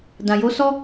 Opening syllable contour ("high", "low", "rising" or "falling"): low